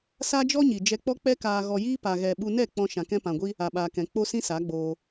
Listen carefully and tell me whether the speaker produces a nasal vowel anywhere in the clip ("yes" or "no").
yes